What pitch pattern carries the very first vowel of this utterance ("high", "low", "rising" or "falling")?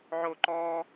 high